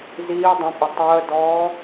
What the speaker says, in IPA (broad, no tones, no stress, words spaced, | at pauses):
ziː dˤə̃pʼə tˤəːdɔː